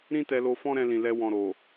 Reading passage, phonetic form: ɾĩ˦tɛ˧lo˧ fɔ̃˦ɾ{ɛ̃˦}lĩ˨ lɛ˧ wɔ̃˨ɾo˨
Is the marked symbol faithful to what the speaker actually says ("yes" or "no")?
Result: no